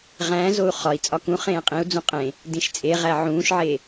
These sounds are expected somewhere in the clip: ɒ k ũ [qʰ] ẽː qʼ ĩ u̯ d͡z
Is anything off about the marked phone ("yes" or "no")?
yes